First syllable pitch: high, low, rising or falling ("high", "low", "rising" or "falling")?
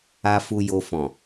low